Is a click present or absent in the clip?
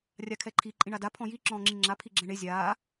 present